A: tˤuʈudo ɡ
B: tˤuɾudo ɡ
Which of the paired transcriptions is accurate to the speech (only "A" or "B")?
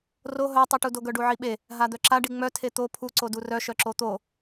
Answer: A